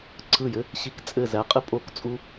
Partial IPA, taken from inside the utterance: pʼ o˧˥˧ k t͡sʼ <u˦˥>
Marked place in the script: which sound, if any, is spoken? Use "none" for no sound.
u˦˥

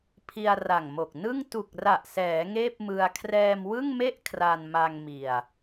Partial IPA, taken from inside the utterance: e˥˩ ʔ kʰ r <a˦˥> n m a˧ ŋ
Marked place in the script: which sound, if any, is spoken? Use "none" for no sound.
a˧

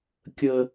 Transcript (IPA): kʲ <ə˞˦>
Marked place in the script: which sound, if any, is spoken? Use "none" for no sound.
ə˦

